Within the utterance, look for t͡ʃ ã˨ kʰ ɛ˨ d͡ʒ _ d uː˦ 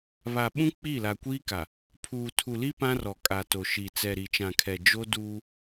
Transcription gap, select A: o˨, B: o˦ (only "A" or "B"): B